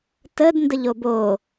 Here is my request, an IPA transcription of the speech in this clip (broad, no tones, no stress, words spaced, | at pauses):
təd ndəʎobo